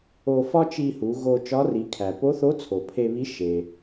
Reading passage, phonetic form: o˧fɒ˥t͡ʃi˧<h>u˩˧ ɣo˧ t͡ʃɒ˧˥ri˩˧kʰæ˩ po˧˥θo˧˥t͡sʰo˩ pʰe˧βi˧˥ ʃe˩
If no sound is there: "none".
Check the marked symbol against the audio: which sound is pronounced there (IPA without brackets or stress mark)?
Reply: h